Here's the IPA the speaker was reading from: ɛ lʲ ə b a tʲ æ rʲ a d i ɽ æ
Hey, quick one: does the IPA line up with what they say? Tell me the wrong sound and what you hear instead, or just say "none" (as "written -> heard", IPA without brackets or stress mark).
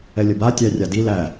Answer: ɽ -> l